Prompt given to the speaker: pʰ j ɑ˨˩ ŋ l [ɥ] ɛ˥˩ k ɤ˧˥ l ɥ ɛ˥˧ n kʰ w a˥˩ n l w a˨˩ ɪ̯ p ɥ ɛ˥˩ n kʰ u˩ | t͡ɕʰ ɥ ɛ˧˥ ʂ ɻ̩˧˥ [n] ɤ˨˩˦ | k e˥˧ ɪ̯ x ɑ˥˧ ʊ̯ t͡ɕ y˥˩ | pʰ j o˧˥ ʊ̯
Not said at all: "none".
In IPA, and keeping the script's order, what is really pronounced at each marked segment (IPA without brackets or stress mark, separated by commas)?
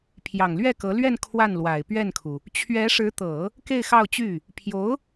ɥ, t̪